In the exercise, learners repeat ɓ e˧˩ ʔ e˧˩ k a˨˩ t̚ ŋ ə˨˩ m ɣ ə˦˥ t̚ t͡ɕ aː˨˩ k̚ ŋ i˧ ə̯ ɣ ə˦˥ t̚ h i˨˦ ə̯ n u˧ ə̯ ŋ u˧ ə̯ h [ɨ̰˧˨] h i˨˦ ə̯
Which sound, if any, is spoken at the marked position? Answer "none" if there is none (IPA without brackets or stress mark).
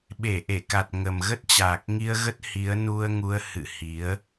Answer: ɨ̰˧˨